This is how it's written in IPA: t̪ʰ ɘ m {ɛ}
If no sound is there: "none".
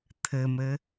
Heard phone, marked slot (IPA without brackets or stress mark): ɘ